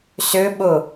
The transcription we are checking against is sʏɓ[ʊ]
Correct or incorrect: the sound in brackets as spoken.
correct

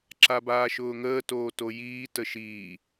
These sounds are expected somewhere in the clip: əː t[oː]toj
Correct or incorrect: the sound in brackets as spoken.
correct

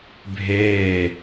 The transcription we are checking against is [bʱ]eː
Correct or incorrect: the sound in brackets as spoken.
correct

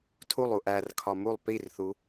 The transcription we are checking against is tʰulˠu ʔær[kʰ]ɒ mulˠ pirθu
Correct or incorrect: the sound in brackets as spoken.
correct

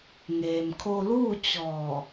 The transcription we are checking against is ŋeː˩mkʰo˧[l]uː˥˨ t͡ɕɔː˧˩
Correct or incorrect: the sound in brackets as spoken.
correct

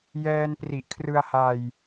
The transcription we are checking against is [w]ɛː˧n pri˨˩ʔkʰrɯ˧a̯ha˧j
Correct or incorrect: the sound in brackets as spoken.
incorrect: j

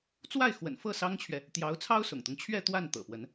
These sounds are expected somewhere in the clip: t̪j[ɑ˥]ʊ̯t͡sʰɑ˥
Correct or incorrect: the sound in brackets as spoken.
incorrect: ɑ˧˥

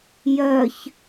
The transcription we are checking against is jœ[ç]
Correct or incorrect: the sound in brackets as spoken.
correct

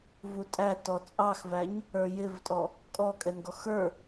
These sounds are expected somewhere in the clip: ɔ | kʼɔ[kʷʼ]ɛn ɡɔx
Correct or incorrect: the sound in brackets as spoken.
incorrect: kʼ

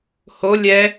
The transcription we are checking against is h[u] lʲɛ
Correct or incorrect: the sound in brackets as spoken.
incorrect: o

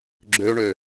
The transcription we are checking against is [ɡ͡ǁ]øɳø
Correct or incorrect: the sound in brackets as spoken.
correct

